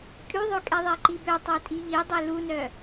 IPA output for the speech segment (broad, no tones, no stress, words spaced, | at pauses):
kʼyðˤø kʼɛðˤɛǃibø tˤotʼiʎidˤe lunœ